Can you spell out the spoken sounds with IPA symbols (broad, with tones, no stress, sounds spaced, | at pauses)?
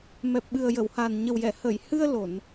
m ɛ˨˩ p̚ ɓ ɨ˨˩ ə̯ j ə˨˩˨ w h a˨˩ n ɲ ə˨˩ w j ɛ˨˩˨ h ə˨˩˨ j h ɨ˧ ə̯ l o˨˩˨ n